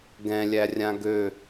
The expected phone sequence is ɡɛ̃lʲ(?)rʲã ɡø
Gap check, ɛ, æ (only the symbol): æ